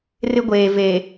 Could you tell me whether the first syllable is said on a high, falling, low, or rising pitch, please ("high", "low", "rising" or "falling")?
high